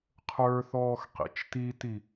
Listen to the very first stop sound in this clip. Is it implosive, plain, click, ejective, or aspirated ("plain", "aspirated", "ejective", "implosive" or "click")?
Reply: aspirated